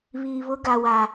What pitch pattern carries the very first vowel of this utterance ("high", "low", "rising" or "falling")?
low